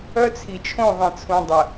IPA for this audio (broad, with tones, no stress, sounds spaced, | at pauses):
œ˦ t͡sʰ i˨ t͡ʃʰ õ˦˨ ðˤ ẽ˨ t͡sʰ ũ˨ dˤ ə˨